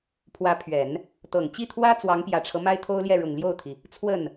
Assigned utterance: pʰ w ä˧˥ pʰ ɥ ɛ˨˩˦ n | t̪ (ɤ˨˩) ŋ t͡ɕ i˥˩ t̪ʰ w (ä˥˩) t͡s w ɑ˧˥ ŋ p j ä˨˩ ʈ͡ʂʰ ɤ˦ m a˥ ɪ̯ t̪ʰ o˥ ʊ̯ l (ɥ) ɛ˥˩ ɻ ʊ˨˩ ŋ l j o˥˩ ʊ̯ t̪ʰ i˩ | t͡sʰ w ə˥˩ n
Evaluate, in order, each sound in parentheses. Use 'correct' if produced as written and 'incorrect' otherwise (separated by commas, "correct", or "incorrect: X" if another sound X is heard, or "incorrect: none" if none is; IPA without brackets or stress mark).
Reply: correct, incorrect: ä˥, incorrect: j